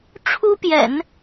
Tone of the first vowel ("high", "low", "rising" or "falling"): high